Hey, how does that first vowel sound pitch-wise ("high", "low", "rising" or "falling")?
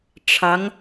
rising